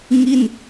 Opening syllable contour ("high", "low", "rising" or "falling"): falling